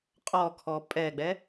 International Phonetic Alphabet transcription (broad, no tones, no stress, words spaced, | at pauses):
qʼɔkʰɔ pʼɛɡ͡bɛ